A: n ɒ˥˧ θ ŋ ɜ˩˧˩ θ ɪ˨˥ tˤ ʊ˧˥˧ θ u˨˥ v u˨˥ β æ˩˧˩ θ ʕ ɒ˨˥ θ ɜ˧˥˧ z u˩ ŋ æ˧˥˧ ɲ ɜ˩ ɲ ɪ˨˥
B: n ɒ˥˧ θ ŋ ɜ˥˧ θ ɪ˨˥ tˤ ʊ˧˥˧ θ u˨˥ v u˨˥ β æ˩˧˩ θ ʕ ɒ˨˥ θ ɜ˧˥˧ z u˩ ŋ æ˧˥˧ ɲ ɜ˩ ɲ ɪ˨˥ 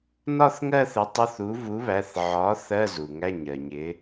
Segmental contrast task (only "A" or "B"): B